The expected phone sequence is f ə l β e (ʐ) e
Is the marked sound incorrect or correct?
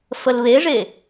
correct